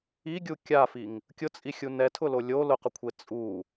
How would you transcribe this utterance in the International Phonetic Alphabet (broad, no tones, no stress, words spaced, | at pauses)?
iɡʲu kʲafiŋ | kʲʊt͡sʼixʲu nɛtʰʊlo lʲo lʊqʊkʷʰe t͡sʼu